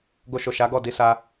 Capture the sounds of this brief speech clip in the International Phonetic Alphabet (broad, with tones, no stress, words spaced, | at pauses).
ɡo˧ʃo˨ʃa˨˦ɡɔ˦˨ di˧sa˧